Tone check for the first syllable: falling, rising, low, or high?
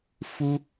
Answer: high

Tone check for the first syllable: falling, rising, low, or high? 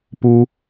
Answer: high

